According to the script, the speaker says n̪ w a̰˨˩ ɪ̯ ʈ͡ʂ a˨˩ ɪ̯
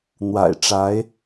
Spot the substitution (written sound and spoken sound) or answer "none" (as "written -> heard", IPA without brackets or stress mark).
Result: a˨˩ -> a˧˥